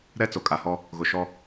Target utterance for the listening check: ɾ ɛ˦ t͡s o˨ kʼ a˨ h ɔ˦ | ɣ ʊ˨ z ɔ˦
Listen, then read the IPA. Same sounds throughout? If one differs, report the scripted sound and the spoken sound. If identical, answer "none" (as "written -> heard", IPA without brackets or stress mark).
z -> ʃ